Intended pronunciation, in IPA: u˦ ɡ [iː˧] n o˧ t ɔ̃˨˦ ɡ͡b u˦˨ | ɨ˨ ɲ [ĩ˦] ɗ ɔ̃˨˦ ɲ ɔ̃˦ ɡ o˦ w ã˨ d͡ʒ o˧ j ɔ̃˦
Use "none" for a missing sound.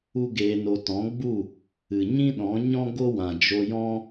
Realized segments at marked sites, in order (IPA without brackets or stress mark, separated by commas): eː˧, ĩ˦